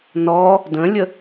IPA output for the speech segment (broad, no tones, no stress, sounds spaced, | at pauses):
n ɔ | d ə̃ lʲ ə